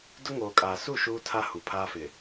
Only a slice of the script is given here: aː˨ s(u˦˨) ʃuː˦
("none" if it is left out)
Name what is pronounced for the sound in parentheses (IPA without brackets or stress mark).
u˦˨